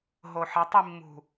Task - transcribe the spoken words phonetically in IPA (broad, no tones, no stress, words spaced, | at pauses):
ɦoħɐtˤimːṳ